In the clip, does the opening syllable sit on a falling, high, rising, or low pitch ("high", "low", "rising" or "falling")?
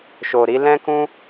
low